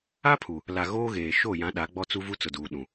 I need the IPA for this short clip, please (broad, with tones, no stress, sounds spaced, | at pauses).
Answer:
a˦ pʰ u˨ | l a˨ ɣ oː˦ ɣ eː˨ ʃ o˦˨ j ã˨˦ ɗ a˨˦ ɡ͡b ɔ˦ t͡s u˦ v u˦ t͡s ʊ˨ d uː˨ ɗ ũ˨